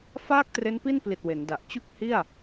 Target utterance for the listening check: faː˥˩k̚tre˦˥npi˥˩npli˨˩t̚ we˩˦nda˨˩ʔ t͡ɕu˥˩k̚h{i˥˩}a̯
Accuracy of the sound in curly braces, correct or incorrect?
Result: correct